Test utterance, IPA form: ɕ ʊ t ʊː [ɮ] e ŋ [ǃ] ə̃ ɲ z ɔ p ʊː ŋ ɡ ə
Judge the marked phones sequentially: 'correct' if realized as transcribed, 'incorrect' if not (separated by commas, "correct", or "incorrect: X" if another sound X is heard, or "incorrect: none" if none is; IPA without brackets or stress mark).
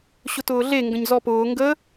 correct, incorrect: ɡ